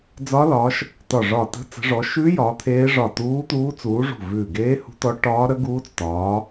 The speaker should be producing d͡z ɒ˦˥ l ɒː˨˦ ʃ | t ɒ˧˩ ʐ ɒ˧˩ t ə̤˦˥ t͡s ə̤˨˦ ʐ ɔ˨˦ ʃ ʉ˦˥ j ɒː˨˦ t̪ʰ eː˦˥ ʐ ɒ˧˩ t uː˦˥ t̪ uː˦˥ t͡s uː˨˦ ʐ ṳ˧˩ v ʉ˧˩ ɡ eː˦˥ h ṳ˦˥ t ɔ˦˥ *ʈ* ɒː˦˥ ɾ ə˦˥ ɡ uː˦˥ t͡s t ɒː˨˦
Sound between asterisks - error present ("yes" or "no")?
no